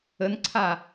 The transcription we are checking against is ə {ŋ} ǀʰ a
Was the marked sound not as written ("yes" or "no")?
yes